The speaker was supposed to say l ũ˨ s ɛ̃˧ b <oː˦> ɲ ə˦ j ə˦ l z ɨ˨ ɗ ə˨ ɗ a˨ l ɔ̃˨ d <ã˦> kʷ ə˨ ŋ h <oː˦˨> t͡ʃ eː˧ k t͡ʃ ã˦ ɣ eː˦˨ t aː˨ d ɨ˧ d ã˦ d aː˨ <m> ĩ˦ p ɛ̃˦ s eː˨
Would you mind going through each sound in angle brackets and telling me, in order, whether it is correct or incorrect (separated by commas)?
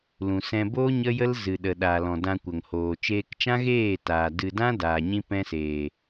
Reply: correct, incorrect, incorrect, incorrect